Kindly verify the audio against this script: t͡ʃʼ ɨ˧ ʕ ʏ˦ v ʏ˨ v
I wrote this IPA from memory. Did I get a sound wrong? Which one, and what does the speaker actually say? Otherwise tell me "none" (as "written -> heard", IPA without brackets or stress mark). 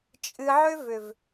none